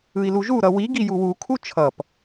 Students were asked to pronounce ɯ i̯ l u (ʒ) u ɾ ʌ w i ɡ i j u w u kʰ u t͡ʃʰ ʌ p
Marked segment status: correct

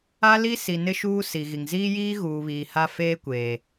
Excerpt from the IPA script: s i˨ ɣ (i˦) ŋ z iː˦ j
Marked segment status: incorrect: i˨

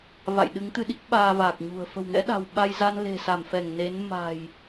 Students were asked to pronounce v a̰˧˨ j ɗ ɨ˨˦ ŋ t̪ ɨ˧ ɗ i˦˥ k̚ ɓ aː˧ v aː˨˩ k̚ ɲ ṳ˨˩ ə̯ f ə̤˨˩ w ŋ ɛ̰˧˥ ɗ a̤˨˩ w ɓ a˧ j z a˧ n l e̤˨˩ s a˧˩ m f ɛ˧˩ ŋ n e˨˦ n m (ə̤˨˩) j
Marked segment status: incorrect: a̤˨˩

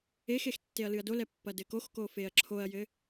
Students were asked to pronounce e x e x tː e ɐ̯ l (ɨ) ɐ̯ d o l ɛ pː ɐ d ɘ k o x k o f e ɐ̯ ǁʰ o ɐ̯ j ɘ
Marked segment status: correct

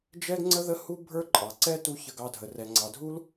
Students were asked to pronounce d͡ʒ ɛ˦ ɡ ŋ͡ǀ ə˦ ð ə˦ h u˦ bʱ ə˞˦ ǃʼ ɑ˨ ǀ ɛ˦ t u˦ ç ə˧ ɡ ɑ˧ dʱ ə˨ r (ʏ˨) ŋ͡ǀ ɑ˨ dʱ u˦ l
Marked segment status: incorrect: ɛ˨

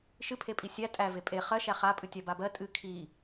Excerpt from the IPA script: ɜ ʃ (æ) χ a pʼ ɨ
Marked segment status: correct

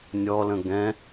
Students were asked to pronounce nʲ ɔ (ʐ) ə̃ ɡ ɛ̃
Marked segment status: incorrect: l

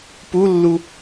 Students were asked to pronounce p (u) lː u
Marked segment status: correct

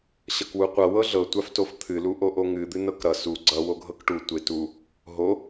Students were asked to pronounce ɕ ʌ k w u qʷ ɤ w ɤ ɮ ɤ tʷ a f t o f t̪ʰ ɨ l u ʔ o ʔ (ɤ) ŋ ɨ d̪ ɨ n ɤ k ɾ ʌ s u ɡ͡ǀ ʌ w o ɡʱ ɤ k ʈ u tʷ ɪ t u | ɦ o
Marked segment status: incorrect: o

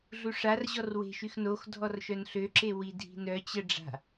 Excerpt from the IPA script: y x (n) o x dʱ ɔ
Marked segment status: correct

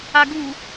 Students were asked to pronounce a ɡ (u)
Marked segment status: correct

